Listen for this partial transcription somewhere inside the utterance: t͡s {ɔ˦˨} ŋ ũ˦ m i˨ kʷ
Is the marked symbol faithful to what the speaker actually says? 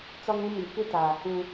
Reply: no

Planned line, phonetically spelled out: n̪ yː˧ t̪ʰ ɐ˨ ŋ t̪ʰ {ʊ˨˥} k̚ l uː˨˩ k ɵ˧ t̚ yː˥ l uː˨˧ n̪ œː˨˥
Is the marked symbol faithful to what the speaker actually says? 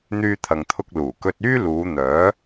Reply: no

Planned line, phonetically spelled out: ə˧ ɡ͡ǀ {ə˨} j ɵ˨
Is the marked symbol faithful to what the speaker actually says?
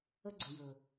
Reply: yes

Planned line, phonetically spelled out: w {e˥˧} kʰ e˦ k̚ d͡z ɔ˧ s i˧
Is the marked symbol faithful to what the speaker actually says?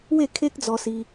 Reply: yes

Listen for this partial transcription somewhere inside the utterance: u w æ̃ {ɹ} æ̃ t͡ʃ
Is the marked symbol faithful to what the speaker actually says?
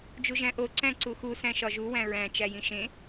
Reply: yes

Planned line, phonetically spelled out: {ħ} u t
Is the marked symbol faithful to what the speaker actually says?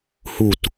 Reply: no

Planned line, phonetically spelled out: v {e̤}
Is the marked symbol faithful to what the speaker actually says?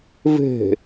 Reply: yes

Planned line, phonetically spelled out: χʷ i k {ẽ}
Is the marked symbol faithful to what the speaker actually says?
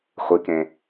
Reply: yes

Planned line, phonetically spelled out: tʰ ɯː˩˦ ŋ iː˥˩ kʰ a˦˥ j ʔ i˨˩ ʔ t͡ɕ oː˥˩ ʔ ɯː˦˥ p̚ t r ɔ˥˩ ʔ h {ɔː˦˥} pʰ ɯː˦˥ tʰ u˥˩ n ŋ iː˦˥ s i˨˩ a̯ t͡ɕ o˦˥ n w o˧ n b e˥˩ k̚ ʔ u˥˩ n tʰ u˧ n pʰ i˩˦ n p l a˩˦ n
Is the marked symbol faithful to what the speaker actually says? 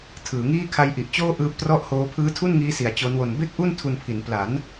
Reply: no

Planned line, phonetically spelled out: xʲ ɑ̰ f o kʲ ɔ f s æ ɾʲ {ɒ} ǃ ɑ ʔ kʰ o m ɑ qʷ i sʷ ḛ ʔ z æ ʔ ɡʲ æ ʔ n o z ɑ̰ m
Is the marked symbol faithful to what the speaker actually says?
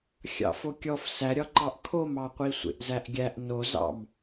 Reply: yes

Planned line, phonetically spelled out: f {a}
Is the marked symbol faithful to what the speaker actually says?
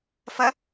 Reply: no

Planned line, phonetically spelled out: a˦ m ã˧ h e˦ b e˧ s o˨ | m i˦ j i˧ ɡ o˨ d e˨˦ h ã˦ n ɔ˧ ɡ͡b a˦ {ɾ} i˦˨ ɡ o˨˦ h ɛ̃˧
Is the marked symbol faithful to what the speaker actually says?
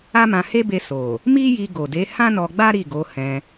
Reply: yes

